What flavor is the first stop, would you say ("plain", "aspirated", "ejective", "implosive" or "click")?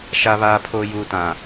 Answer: aspirated